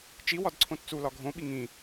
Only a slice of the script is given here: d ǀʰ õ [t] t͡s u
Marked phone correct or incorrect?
correct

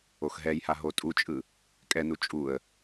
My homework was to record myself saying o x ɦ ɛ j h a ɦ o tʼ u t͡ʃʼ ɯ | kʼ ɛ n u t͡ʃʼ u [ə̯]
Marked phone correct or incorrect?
correct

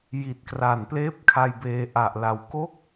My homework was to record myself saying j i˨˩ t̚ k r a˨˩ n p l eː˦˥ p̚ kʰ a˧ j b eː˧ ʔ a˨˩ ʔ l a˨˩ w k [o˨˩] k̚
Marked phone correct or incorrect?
incorrect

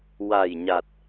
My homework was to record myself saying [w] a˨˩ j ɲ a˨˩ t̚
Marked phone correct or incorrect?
correct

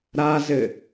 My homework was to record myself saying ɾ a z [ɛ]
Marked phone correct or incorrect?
incorrect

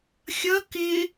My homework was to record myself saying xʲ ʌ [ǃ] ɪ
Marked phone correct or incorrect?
incorrect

